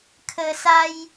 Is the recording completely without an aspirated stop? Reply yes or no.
no